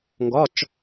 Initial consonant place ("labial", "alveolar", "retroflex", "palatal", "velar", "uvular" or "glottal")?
velar